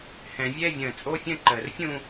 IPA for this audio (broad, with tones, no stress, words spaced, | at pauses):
hɛ̃˨vʲɛ˥˧ vʲə̃ː˨t͡sʼo˥fʲə̃˥˧ǃəː˨r fʲũ˥˧